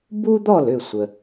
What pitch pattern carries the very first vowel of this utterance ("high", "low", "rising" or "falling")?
high